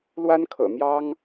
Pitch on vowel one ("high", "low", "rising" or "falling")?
high